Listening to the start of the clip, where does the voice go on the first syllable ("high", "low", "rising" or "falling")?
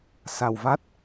low